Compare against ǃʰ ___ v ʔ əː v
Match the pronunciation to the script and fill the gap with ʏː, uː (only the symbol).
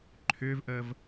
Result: ʏː